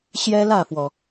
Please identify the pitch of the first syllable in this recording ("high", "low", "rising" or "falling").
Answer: high